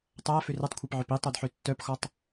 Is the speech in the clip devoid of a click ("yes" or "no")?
yes